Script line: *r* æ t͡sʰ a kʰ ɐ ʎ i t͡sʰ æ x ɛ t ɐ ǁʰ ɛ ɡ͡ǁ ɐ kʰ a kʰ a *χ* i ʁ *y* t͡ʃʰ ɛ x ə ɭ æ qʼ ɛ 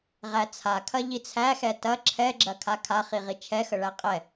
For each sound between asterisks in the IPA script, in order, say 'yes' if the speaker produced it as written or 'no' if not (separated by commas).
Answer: no, yes, no